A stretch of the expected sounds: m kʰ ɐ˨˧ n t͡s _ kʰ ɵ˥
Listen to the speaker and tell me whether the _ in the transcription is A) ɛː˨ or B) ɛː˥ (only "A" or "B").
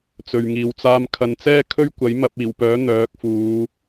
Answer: B